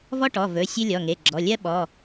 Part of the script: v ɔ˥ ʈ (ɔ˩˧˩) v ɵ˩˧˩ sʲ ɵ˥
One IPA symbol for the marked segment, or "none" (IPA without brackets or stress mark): ɔ˩˧˩